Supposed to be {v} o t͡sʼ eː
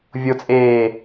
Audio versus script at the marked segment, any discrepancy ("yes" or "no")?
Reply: yes